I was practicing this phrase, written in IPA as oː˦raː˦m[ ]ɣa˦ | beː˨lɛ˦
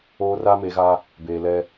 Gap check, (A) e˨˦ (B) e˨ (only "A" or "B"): A